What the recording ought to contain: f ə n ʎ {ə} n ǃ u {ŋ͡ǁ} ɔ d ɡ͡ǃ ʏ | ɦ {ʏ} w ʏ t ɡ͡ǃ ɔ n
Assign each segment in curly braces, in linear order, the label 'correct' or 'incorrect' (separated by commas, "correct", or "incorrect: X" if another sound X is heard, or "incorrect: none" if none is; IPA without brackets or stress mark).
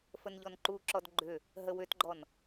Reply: incorrect: ɔ, incorrect: ǁ, incorrect: ə